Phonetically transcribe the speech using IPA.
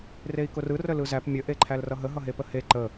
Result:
rei̯kʊrɯ rəlɯzæp mʲə ʔeǃʰælrʌɦə ɦʌɦepəhe ǃə

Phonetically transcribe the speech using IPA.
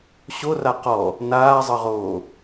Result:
ɕora qɔ | naːzˤɤʁoː

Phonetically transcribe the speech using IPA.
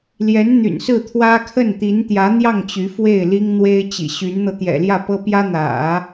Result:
ljɛ˧˥n n̪y̰˨˩nsɹ̩˥˩ t̪ʰwä˥ kʰə˥˩nt̪i˧˥nt̪jä˧˥n̪jɑ˥˩ŋ t͡ɕy˧˥fwe˥˩ɪ̯li˥ŋ n̪we˥ɪ̯t͡ɕḭ˨˩ɕy˧˥nn̪ɤ˧ t̪jɛ̰˨˩ljä˥˩pɤ˥ pjä˥n̪ä̰˨˩˦

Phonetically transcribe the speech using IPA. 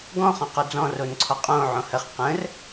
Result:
ɡɔ̃ χõqod͡zɔ̃ ronǀʰɔqʼõ ʕõhəχ qə̃r

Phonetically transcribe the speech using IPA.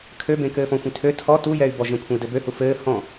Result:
kʰøbẽkɘː fɔ̃xʷẽtʰø tʰɔ tujɛy̯bɔ ʒẽkʷʰẽy̯dɘbø hufɘː hɔ̃

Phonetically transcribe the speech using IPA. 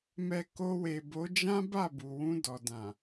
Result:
mɛ˨ ko˧we˨bo˨˦ d͡ʒã˦ba˦˨ bu˨wũ˧dɔ˨ dã˨

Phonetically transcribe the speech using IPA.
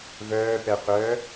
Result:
vœːpɛqʷœː

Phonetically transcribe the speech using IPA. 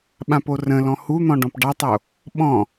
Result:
ɓãporə̃lɔ̃ hun̪ɔ̃ ɖɔ̃pɖɑtˤo | ɓɔ̃

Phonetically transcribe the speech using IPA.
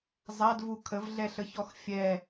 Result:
zˤadvu kʰəvɮɛɬəçɔx fʲɛ

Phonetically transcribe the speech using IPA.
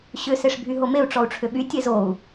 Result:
ɕʏ seʂbʱyɦomeu̯ ʈ͡ʂɔu̯ʈ͡ʂʰʏɓy tʲezou̯

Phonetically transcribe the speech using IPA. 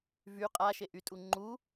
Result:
vy qʼaʃeʔytʼu ŋ͡ǃu

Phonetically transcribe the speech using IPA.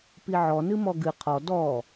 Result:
piʕɔ nɨmɔɡɨ qʰɔ dɔ

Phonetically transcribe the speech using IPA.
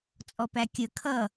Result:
t͡sʼɔpækʲə kʰʌ

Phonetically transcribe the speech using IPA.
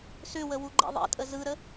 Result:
sʏwə wuɡ͡ǃɛ̰ðˤɛ̰tʼə zɯɾə

